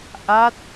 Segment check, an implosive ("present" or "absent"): absent